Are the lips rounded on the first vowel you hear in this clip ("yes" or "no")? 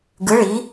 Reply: no